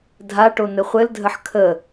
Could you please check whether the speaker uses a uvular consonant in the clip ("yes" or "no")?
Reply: yes